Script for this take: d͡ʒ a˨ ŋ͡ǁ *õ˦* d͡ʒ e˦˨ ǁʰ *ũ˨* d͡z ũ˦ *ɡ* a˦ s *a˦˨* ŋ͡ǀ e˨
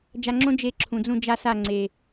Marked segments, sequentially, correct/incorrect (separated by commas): correct, correct, incorrect, correct